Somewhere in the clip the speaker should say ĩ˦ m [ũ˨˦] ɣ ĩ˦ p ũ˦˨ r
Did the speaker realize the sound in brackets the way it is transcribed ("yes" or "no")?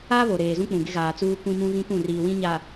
no